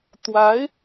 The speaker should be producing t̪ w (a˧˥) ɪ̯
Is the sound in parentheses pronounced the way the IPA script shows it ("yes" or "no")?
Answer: yes